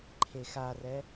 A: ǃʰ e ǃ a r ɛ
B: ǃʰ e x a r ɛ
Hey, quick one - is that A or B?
B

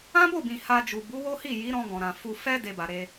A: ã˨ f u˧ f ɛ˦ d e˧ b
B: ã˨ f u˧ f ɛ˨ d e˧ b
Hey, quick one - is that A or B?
A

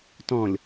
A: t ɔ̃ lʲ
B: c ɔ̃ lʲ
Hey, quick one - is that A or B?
A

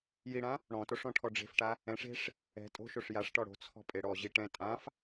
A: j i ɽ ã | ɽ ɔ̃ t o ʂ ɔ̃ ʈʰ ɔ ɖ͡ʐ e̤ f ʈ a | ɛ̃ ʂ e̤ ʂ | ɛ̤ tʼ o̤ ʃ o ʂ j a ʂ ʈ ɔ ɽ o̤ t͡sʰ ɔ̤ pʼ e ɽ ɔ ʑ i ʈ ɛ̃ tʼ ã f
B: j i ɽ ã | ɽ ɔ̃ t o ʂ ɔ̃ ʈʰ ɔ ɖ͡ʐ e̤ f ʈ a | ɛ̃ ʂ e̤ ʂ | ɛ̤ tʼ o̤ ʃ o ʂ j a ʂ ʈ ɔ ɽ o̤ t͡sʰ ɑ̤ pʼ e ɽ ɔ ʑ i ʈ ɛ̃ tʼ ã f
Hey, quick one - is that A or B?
A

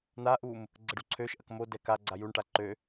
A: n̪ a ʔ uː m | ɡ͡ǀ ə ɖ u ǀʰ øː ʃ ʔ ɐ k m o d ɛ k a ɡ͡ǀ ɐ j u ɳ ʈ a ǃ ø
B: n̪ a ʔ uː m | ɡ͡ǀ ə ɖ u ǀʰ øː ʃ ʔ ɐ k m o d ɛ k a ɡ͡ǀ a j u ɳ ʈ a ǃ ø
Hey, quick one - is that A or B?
B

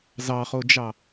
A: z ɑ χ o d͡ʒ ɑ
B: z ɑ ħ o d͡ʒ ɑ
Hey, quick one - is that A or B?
A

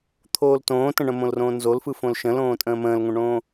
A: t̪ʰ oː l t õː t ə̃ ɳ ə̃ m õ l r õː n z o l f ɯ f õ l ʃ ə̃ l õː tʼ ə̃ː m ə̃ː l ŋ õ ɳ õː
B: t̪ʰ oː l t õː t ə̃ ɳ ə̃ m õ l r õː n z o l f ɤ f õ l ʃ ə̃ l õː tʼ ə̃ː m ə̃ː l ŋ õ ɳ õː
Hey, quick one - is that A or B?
A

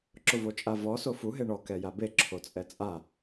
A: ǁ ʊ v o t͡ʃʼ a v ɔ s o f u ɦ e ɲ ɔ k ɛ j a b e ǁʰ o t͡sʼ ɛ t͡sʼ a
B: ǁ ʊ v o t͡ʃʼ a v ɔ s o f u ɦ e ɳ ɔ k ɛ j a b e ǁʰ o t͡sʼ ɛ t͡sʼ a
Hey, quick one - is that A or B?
B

